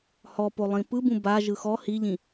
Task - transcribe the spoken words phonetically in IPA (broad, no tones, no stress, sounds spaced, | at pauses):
h ɔ p o lˠ ĩ p ɯ b ũ b a ʒ ɯ x ɔ h i ʎ ĩ